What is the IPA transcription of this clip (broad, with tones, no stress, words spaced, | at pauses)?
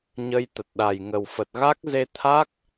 ɲə˧jt̪ə˨˩t̚ ɗa˨˩jŋə˨˩wfə˨˩t̚ ɣa˦˥k̚ze˧t̪ʰa˦˥k̚